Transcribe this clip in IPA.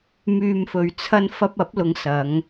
m yː˨ m f ɵ˨ ɥ t͡sʰ ɐ˧ n f ɐ˧ p̚ ɐ˨˥ p̚ l ʊ˨˧ ŋ s ɐ˨˧ ŋ

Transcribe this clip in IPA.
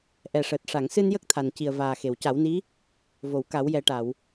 ʔ ɛ˨˩ ʂ əː˨˩ t̚ ʂ a˨˩˨ ŋ s ɨ˧ n j ə˦˥ k̚ t̪ʰ a˨˩ n c i˨˩ ə̯ v aː˨˩ x e˨˩˨ w c a˨˩˦ w n i˧˥ | v o˨˩˨ w k a˨˩˦ w j ɛ˨˩˦ ʈ a˨˩˨ w

